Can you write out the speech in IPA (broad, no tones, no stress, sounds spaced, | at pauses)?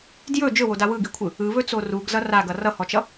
d j ɵ d͡ʒ ɵ w o d a w ɯ ɡ i kʷʰ ɯ | ɯ β ɵ t͡s o r u ɡ z ʌ r a ɡ ʌ r ʌ h ɔ t͡ʃ ʌ